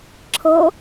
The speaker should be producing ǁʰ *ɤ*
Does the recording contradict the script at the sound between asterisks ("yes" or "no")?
no